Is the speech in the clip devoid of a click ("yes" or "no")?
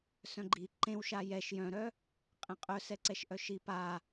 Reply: no